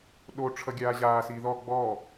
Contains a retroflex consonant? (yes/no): yes